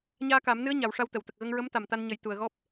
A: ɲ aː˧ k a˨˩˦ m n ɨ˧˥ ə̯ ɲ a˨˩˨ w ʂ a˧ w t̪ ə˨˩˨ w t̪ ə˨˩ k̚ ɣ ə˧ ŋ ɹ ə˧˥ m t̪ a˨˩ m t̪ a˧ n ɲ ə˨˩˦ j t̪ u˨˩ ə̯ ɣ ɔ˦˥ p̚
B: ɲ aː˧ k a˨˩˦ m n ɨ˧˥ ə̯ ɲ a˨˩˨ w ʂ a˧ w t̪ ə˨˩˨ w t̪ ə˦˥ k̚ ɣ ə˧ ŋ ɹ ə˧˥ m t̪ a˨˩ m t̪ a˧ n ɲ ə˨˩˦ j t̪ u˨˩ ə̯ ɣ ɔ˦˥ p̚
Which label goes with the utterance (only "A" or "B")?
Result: A